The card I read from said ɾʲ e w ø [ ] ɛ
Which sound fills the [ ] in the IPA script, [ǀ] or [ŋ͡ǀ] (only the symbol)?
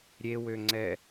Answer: ŋ͡ǀ